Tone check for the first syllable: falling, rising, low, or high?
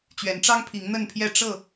rising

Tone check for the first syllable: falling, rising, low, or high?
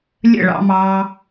falling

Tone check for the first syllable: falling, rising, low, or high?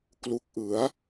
low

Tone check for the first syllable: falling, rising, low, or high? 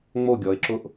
falling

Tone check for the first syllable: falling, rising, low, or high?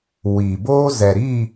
low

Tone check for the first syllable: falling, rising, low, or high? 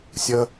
high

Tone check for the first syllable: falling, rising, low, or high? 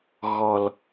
low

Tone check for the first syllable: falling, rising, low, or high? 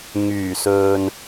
low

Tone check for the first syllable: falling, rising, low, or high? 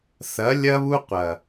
rising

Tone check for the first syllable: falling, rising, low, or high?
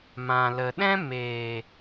low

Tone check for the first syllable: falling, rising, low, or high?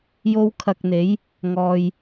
high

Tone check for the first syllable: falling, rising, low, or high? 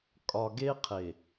low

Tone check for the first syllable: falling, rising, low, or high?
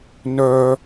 high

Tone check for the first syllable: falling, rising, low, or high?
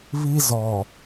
high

